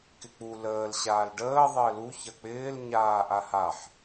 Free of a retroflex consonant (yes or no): no